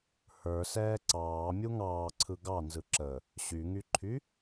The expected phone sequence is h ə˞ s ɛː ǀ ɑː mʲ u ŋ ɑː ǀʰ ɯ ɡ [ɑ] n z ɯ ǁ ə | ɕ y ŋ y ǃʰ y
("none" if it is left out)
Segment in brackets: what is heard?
ɑ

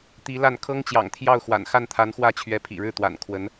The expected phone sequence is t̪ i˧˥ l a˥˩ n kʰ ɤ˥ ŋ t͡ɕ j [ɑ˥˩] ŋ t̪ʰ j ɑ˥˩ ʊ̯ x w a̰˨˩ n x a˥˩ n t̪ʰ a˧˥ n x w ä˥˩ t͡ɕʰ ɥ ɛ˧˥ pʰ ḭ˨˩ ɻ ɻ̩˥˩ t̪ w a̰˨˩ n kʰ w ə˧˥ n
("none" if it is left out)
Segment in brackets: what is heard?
ɑ̰˨˩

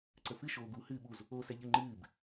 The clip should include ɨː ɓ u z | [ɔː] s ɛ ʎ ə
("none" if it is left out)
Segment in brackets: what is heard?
oː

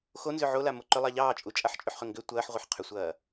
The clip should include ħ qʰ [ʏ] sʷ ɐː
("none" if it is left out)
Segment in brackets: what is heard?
ʏ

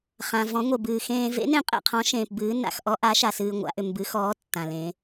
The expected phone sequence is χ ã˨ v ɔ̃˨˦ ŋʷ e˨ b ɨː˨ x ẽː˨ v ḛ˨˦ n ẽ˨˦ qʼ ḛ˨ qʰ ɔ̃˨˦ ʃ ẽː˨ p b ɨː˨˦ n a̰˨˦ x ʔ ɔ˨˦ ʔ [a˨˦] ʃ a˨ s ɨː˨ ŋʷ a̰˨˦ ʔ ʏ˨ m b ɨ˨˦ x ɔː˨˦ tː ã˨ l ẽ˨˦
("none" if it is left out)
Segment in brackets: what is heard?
a˨˦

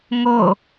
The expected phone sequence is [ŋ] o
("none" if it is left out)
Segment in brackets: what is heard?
ŋ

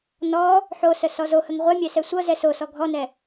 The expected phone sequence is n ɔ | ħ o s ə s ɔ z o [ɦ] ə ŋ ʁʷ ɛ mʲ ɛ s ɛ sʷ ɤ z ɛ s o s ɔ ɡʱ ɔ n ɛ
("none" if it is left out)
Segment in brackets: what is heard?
h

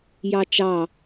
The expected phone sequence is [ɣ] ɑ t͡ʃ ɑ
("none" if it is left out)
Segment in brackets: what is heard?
j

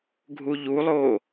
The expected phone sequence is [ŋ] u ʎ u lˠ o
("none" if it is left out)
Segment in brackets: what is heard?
ɡʱ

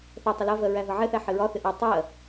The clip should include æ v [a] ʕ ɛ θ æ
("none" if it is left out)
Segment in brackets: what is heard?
ʌ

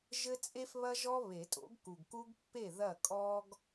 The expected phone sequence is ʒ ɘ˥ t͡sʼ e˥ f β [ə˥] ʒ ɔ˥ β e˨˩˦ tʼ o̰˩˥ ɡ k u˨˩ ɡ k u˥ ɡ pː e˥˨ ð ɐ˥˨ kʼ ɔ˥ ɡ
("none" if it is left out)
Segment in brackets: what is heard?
ɐ˥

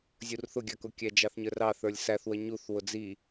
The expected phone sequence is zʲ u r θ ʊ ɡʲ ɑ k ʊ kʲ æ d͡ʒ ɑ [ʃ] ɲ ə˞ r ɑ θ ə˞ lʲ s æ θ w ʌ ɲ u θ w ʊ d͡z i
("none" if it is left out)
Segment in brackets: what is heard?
θ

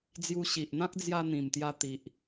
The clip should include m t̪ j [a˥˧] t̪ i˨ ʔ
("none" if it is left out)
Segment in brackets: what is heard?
a˧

